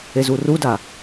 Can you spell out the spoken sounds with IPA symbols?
ezuruda

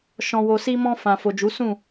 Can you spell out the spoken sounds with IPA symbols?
ʃɔ̃˨wo˨si˧mɔ̃˧ fã˨fo˨d͡ʒu˨˦ sũ˦˨

